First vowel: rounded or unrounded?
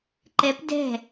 unrounded